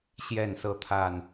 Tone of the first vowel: falling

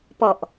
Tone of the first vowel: low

